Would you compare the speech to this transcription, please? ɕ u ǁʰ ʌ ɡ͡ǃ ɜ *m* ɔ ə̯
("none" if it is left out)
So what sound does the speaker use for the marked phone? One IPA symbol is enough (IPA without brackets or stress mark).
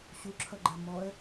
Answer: m